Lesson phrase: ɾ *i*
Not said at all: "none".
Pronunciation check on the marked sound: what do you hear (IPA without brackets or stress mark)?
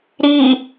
i